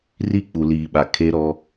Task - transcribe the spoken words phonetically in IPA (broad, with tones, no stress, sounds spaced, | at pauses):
r i˦˨ k͡p u˨ l iː˨ ɓ a˨ kʰ e˦ ɾ ɔ˦